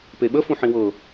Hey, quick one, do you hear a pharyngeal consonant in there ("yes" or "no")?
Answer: yes